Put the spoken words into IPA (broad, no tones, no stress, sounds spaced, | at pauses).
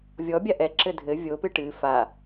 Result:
vʲ ɔ bʲ a ʔ ɛ ǁ ɘ dʱ ɘ vʲ o p ɨ ʈ ɨ f a